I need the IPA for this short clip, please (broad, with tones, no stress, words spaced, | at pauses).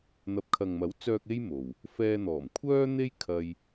n̪ɐ˨p̚kʰɐ˨ŋmɐ˨˥wt͡sœː˧k̚ e˥j mo˨w | fɛː˧n̪ɔː˨˩m kʷʰœː˥n̪e˥j kʰɐ˥j